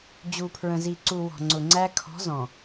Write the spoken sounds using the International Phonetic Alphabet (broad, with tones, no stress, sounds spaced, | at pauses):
d͡ʑ u˨ pʰ ɹ ə̃˨ z i˨ ǀ u˨ w ɔ̤˨ ŋ͡ǀ ʊ˨ ŋ͡ǀ æ˦ kʰ ɔ̤˨˦ z ɔ̃˨